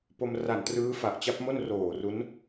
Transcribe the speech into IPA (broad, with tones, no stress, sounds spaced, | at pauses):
p o˧ m r a˨˩ n t r ɯː˦˥ f a˨˩ ʔ t͡ɕ a˦˥ p̚ m o˥˩ n r oː˨˩ r u˦˥ n